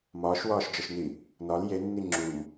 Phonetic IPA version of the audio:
m ɒː ʃ w ɒː ʃ d͡ʒ ɒ ʃ n i | n ɒ l j e nː i ŋ͡ǁ u m

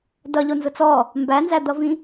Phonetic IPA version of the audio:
d ʌ ʎ o n z ʊ t͡s ɔ | m b æ n z æ d̪ ʌ v ĩ

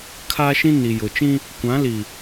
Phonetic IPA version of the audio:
kʰ a˦ ʃ ĩ˦ n i˨ j ʊ˨ t͡ʃ ĩ˦ | kʷ ã˨˦ l i˨

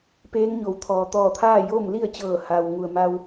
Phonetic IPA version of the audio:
p eː˧˥ ŋ ɲ o˩˧ w t̪ʰ ɔː˩ t̪ ɔː˧˩ t̪ʰ aː˥˨ j oː˥˨ m l i˥˨ ə̯ t͡ɕ ɤː˧˩ h a˩ w ŋ u˩ ə̯ m a˧ w

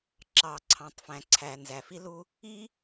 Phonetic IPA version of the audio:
ǁ ɑ˩ ǀʰ ɑ̃˩ tˤ f æ̃˩ ǀʰ æ˩ n z æ˩ f i˥ l u˥ | i˥

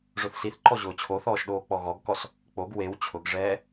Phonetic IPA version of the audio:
ʐ ʊ θ s i θ ǃ ɔ ʑ ʊː t͡ɕʰ o θ ɔː ʃ ɗ oː k͡p ɔ ɣ ɔ ɡ k ɔ s | k͡p o ɡ w e w t͡ɕʰ ʊ ɡ ʐ ɛː

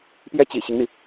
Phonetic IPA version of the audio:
p j ɛ˥ t͡ɕ ḭ˨˩ ɕ i˦ ŋ n̪ i˩

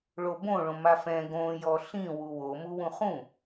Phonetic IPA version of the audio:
ɭ o b õ ɭ õ m a f ɛ̃ ɡ õ j ɔ ɬ ĩ w u w o m u w ũ χ ũ

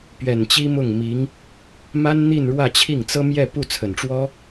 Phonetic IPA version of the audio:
p ɥ ɛ˨˩ n t͡ɕ i˥ m ʊ˥˩ ŋ m i˧˥ ŋ | m a˥ n n̪ i˥˧ n ɻ w ä˥˧ t͡ɕʰ i˥˩ ŋ t͡s ɤ˥ m j ɛ˥˧ p u˥˩ t͡sʰ ə˨˩ n ʈ͡ʂ w ɔ˥

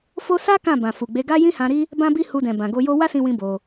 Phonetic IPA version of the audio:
f o˦ s a˦ k ã˦˨ b ã˨ f u˨ ɡ͡b e˨˦ ɡ a˦ j ĩ˦ h ã˧ ɾ i˦ | b ã˦ b i˦ h u˧ d ɛ̃˨ b ã˨ ɡ o˧ j o˦ w a˦ s ĩ˧ w ĩ˧ b o˧

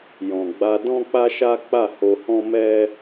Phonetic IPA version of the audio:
j ɔ̃˨ ɡ͡b a˧ d ɔ̃˦ k͡p a˦ ʃ a˦ k͡p a˦˨ h o˧ h ɔ̃˦ m ɛ˦

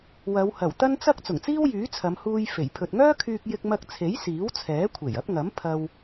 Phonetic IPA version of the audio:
w ɐ˨˧ w h ɐ˨˩ w t̪ ɐ˥ n t͡s ɐ˥ k̚ t͡s ʊ˨˩ ŋ t͡s iː˥ w j yː˨˥ t͡sʰ ɐ˨˧ m h uː˧ j f e˨˩ j pʰ ɵ˨ t̚ ŋ œː˥ kʰ yː˧ k̚ j ɪ˥ k̚ m ɐ˥ k̚ t͡sʰ e˨˥ j s iː˨˥ w t͡sʰ ɛː˨˥ kʷʰ e˨˩ j ɐ˨˥ p̚ ŋ ɐ˨˥ m pʰ ɐ˧ w

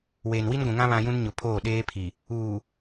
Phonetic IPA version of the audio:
w eː˨ n w i˦ n ɡʷ ũ˨ ŋ ã˦ β ã˦ j ũ˦ n ɲ ʊ˨ pʰ oː˦˨ ɗ eː˦ pʰ i˨ | uː˨

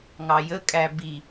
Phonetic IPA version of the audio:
ŋ ɑ j ə kʼ æ b i

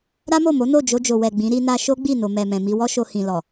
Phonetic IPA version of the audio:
ɾ a˦ m o˦˨ m o˨˦ n o˦˨ d͡ʒ o˧ d͡ʒ o˨ w ɛ˨ ɡ͡b ĩ˨˦ ɾ i˦ n a˦ ʃ o˦ ɡ͡b i˦˨ n o˨ m ɛ˨ m ɛ̃˨ m i˧ w ɔ˦ ʃ o˧ h ĩ˨ l ɔ˨

